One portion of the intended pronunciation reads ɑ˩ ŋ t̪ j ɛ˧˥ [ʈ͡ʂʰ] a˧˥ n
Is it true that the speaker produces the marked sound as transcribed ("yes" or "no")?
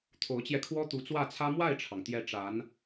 no